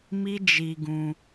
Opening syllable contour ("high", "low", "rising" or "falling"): high